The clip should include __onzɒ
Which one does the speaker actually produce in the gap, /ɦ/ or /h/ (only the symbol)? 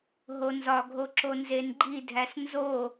ɦ